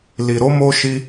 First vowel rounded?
no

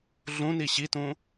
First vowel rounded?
yes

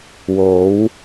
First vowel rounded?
yes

